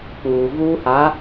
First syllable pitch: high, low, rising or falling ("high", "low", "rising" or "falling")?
low